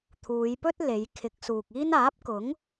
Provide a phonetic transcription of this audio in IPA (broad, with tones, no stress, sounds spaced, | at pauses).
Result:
t̪ʰ uː˨˧ j p ɵ˥ t̚ l e˨˧ j kʰ ɪ˨˥ k̚ s uː˨ k̚ iː˥ n aː˨˥ p̚ k ʊ˨˥ ŋ